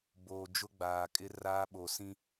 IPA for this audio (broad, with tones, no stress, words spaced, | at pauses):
boː˨d͡ʒʊ˦ɡ͡baː˨kʼɪ˦ raː˦ɓo˨ sĩ˦